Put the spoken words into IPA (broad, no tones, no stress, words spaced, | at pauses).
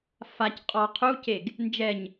fac qʼɔ qʰuceɡ | nd͡ʒɛɲ